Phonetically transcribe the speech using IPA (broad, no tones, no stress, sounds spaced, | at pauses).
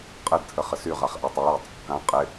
qʼ ɘ d tʰ ə χ ə s y ʁ a χ ʔ a tˤ a j ɘ tˤ | k ã qʼ ɪ